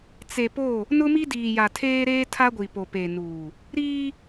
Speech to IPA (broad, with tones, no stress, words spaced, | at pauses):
t͡se˨po˦˨ | nʊ˦mi˦diː˨ ja˨tʰeː˦ɾeː˦tʰa˦ ɡʷi˨po˨pe˨nuː˨ | ɾiː˦